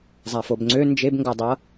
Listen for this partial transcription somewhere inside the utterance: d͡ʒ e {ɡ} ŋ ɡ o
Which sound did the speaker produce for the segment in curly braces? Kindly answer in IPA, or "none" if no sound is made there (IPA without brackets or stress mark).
b